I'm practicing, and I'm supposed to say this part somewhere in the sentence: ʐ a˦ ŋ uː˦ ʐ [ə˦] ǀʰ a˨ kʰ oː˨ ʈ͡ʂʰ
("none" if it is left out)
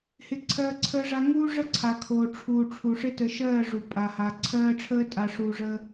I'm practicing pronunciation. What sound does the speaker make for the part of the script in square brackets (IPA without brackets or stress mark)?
ə˦